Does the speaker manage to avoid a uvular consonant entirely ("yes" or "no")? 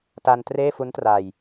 yes